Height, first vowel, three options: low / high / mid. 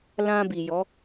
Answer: low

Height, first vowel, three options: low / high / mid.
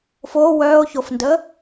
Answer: mid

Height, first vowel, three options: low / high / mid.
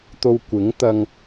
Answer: mid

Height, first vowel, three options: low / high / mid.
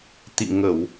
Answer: high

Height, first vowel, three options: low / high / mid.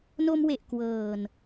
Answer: mid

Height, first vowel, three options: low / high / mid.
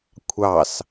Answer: low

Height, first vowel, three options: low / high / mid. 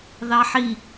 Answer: low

